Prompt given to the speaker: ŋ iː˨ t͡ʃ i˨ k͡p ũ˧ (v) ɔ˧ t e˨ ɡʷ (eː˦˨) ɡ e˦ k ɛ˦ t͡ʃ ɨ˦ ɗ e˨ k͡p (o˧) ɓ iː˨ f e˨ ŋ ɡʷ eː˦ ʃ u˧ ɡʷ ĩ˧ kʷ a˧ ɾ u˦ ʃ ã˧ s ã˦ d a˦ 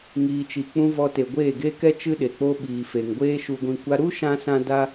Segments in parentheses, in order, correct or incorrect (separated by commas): correct, correct, correct